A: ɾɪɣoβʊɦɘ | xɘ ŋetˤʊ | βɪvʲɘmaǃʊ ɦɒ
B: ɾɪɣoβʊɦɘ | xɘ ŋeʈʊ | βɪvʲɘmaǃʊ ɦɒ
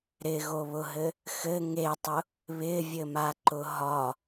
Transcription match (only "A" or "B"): A